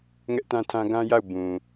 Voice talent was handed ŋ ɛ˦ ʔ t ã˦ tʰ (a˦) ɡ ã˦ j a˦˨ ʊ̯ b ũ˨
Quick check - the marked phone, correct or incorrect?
incorrect